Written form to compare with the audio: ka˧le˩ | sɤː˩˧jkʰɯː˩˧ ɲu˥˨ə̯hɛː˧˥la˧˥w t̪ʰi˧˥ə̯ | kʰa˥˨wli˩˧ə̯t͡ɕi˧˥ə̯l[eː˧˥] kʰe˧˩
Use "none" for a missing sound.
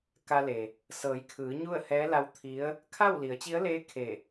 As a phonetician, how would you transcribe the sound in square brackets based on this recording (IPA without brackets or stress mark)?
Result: eː˧˥